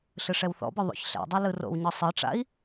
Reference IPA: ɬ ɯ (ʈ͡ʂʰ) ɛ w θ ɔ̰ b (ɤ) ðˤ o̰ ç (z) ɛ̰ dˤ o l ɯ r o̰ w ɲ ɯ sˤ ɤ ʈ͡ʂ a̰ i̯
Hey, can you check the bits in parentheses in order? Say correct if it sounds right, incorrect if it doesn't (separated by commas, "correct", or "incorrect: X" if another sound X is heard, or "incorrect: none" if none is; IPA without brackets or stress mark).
incorrect: ʂ, incorrect: ɯ, incorrect: ɬ